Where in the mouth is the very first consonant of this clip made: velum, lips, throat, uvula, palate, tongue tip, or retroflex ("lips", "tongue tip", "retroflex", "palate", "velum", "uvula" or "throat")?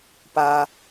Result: lips